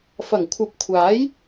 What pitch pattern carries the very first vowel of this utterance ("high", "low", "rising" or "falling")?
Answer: low